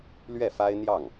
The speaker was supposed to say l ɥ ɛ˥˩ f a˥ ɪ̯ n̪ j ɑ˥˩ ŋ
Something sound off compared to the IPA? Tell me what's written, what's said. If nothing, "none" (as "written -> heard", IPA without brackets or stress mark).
none